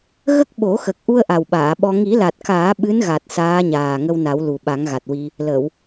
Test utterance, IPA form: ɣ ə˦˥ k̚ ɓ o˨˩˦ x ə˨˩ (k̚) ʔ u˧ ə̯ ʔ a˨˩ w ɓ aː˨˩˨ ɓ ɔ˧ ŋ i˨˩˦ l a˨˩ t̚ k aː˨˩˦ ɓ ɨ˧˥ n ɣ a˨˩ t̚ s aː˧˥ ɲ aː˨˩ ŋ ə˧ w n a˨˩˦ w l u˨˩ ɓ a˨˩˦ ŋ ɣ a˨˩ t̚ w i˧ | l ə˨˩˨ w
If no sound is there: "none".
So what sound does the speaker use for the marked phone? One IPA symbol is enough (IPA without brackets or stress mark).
k̚